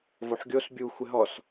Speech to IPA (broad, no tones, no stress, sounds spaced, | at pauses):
v o ħ ɡʲ o s bʲ u xʷ ɪ ɦ ɔ s